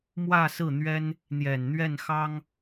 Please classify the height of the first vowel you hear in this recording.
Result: low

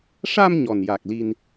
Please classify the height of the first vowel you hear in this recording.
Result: low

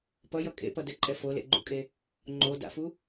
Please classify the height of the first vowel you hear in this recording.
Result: mid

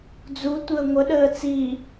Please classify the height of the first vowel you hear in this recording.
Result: high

